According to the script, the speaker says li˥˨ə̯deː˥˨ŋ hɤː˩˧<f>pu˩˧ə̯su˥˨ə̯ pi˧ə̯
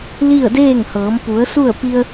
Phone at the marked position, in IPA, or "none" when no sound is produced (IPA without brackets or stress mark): m